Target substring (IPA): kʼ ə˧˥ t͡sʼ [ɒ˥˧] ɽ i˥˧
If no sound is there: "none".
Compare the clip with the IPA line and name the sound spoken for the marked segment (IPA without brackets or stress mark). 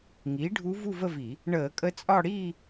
ɒ˥˧